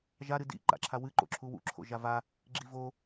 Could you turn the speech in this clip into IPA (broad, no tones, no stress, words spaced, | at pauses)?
ʒa ɾɨdḭ ǃa̰ǁʰawɨ ǃo̰ǁʰuwṵ ǁʰo̰ʒava | ɡ͡ǁivo